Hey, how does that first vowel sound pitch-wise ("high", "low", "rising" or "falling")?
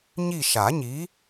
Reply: falling